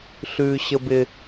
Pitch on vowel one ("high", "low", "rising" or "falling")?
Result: high